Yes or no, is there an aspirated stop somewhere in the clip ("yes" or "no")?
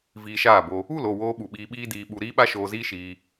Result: no